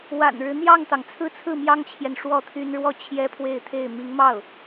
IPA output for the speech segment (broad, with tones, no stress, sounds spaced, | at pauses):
w a̰˨˩ n ɻ ɻ̩˦ n̪ j ɑ˥˩ ŋ t̪ ɑ˩ ŋ t͡sʰ ɹ̩˥˧ t͡sʰ ɹ̩˥˩ m j ɑ˥ ŋ t͡ɕʰ j ɛ˨ n ʂ w ɔ˥˩ t̪ʰ y˥ n ɻ w ɔ˥˩ t͡ɕʰ j ɛ˥ pʰ w e˥˧ ɪ̯ t̪ʰ e˥˩ ɪ̯ m i˧˥ ŋ m ɑ˥˩ ʊ̯